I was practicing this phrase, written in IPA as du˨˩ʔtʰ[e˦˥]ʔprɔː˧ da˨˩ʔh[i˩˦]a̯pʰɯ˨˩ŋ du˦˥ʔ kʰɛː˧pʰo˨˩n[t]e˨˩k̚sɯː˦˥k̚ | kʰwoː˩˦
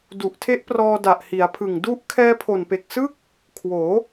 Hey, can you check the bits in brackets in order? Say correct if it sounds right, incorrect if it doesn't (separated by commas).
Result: correct, correct, incorrect